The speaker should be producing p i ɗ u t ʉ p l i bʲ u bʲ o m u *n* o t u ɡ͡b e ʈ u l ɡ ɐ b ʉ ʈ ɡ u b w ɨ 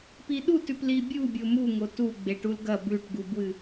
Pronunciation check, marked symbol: incorrect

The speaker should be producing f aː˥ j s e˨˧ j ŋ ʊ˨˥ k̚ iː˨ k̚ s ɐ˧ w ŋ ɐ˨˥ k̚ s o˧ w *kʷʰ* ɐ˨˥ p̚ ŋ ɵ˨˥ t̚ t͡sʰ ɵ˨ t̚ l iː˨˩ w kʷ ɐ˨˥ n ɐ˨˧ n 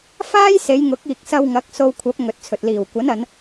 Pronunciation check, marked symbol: correct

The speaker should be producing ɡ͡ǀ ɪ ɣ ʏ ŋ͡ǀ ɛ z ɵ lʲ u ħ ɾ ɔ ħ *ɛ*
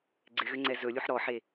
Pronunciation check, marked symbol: incorrect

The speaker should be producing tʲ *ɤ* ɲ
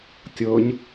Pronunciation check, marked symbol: correct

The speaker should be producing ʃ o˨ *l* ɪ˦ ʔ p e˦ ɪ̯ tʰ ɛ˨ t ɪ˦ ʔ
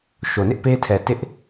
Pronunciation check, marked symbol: incorrect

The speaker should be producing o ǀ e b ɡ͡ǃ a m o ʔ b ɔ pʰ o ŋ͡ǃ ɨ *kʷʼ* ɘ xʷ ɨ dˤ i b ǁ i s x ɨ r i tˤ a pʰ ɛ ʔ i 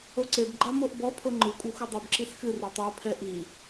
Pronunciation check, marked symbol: correct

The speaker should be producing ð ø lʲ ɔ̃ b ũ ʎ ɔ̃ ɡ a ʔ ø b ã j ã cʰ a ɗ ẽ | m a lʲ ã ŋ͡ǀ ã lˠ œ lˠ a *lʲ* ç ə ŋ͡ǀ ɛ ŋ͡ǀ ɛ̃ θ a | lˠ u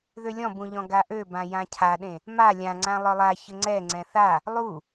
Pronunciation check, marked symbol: incorrect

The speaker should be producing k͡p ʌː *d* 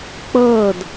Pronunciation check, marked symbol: correct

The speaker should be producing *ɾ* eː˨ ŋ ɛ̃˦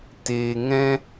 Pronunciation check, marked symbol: incorrect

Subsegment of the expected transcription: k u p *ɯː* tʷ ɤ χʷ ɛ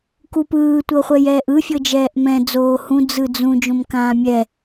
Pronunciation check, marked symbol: correct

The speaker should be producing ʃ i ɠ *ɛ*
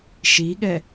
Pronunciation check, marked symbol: correct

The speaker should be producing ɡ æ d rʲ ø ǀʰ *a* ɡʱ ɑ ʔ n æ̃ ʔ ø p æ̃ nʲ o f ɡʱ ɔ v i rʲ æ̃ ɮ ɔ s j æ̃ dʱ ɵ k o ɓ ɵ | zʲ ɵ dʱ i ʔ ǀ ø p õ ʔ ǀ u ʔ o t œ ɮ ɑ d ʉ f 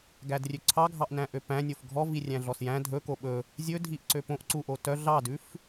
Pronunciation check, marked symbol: incorrect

